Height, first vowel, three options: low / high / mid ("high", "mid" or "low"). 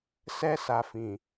mid